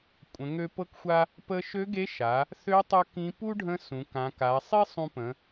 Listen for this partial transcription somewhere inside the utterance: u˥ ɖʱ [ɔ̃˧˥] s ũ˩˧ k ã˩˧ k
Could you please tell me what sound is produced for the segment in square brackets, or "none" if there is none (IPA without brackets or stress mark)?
ə̃˧˥